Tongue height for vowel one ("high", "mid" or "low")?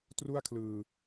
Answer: high